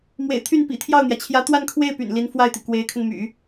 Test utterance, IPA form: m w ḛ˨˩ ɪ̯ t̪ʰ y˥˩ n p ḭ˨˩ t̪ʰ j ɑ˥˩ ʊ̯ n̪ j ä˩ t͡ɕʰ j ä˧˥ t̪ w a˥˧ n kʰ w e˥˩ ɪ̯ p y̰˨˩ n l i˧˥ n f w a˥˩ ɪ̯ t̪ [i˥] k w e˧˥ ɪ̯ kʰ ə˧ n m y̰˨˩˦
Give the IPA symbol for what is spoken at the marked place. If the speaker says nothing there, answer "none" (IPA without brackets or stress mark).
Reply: i˩